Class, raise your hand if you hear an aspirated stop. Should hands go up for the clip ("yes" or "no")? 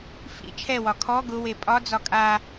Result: yes